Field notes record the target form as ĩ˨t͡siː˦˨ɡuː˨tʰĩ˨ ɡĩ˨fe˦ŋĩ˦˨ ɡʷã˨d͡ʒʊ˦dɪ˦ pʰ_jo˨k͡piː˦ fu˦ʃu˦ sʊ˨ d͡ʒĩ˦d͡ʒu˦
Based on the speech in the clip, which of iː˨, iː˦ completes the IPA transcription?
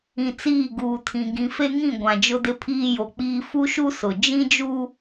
iː˦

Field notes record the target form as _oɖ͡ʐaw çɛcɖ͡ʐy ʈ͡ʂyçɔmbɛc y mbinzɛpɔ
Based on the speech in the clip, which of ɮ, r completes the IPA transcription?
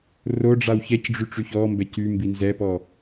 r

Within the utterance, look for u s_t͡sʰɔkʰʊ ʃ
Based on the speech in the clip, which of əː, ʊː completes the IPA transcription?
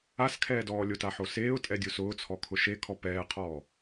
ʊː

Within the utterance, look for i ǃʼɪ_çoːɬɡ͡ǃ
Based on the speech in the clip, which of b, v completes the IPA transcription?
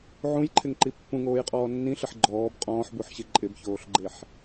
b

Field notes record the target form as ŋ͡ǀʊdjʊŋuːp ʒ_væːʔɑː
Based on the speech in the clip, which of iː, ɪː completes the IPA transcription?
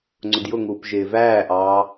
ɪː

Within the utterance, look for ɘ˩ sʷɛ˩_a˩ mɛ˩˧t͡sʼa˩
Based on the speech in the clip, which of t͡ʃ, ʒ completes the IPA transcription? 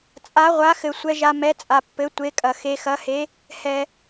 ʒ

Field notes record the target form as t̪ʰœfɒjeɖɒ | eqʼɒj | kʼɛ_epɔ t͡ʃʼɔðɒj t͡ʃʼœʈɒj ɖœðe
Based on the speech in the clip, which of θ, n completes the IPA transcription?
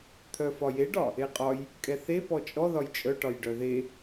θ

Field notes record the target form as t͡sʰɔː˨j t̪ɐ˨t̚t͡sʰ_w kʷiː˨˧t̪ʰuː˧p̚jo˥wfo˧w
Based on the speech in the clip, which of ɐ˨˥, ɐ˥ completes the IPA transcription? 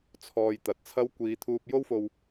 ɐ˥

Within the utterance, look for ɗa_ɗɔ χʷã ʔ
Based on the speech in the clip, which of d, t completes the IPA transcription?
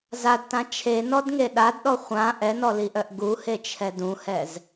d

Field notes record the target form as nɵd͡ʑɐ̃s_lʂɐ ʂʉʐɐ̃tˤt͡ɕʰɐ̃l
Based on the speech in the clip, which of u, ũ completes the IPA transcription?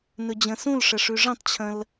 ũ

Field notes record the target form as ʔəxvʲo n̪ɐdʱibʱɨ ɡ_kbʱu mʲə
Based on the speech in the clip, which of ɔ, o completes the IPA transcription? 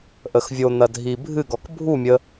ɔ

